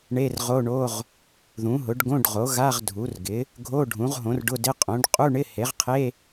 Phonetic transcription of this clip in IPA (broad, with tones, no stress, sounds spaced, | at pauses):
ɳ e˧˥˧ r ʁ o˧˥˧ ɳ o˧˥˧ ʁ | ð ũ˩˥ ɦ ʊ˩˥ ɖ ɡ õ˧˥˧ ɖ ʁ o˩˥ ɣ a˧˥˧ ʁ dʱ u˩˥ r ɡ ɪ˩˥ | ɡʱ o˧˥˧ ɖʱ ũ˩˥ ʁ ɦ õ˩˥ r ɖ ʊ˧˥˧ d ɪ˧˥˧ qʼ õ˩˥ ɖ qʼ u˧˥˧ ɳ ɪ˧˥˧ h e˩˥ ʁ qʰ e˧˥˧